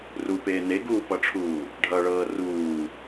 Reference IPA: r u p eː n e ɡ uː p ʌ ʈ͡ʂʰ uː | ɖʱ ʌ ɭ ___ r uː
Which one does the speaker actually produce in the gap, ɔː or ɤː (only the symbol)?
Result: ɤː